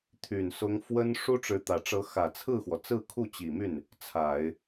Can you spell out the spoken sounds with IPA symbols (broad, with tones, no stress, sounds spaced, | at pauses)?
t̪ʰ y˨˩ n s ʊ˧˥ ŋ f w ə˥ n ʂ u˥ ʈ͡ʂ ɻ̩˧˥ t̪ ä˨˩ ʈ͡ʂ ɤ˧˥ x ä˨˩ t͡sʰ ɹ̩˥˩ x w ɔ˩ t͡s ɹ̩˥˧ kʰ u˥˩ t͡ɕ i˨˩ m y˥˩ n | t͡sʰ a˨˩˦ ɪ̯